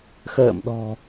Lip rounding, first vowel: unrounded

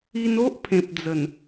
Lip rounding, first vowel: unrounded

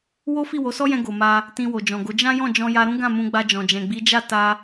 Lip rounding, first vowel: rounded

